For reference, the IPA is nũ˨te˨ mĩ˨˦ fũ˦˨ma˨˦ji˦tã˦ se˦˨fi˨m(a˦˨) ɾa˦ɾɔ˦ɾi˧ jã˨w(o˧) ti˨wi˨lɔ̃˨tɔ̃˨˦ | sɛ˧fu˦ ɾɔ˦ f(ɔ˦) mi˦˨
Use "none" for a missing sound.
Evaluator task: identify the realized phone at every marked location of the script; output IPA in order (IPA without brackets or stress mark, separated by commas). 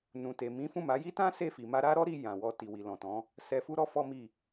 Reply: a˧, ɔ˧, ɔ˦